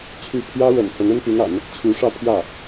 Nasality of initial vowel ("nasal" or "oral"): oral